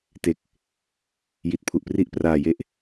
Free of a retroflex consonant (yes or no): yes